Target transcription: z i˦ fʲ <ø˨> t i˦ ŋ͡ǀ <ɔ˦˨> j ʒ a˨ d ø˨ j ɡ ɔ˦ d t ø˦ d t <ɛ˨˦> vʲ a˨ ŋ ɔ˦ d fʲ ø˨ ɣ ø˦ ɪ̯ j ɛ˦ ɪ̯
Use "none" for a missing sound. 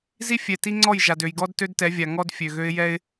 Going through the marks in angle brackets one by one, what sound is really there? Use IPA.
ɛ˨, ɔ˦˨, ɛ˨˦

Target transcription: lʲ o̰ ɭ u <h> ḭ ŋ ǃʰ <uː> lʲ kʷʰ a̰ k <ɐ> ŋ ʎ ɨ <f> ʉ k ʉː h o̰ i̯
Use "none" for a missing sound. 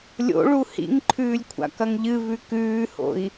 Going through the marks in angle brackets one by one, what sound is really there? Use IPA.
h, ʉː, ɐ, v

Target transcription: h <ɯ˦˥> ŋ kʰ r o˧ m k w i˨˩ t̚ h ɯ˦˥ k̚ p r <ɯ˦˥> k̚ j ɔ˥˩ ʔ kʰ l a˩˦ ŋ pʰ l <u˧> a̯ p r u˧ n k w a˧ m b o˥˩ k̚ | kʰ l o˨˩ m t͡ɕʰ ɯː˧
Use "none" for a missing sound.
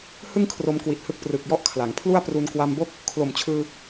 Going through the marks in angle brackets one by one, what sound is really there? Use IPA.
ɯ˥˩, ɯ˨˩, u˥˩

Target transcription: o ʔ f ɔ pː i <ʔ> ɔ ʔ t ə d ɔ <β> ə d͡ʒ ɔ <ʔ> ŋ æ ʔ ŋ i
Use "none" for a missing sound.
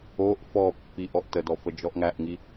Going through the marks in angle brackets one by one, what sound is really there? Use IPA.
ʔ, f, ʔ

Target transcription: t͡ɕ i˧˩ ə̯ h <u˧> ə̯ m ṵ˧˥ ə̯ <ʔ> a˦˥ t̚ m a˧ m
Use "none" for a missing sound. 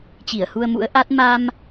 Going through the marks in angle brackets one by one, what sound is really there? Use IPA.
u˧, ʔ

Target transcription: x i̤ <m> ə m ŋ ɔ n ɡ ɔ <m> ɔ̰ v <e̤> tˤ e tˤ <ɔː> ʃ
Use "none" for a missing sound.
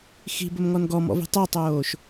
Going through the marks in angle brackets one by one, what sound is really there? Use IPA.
b, m, i̤, oː

